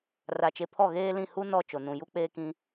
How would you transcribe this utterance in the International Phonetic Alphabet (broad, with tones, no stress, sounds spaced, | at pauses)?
r a˨ t͡ʃ e˨ pʰ ɔ˦˨ ɣ eː˦ l ĩ˦˨ h u˦ n ɔ˦˨ t͡ʃ o˨ n ũ˨ j u˦ k͡p eː˦ k ĩ˦